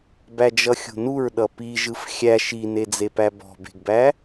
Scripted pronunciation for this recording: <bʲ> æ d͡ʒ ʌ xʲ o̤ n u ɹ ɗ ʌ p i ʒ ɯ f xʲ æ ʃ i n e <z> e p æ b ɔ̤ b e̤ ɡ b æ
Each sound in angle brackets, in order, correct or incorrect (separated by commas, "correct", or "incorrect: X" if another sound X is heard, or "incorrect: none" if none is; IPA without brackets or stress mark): incorrect: b, incorrect: d͡z